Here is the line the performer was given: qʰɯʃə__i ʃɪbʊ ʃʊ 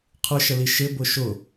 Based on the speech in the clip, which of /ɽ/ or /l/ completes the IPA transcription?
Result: l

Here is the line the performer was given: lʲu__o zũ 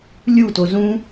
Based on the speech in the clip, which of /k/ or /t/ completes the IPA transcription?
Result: t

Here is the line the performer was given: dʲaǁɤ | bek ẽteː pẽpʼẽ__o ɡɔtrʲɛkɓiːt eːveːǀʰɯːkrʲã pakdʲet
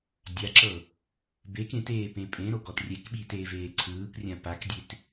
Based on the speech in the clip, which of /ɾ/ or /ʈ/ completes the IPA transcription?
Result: ɾ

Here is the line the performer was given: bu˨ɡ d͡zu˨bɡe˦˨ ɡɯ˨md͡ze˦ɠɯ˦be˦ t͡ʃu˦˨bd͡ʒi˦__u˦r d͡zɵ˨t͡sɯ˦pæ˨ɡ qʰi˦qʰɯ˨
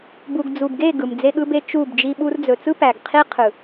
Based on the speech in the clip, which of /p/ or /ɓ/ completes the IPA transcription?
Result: ɓ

